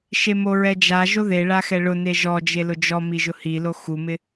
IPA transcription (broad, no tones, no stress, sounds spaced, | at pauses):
ʃ e m o ɹ ɛ d͡ʒ a ʒ o ð e ɭ a x ɛ ɭ ʊ n e ʒ ɔ d͡ʒ e l ʊ d͡ʒ ɔ m i ʒ ʊ h i l o x u m ɪ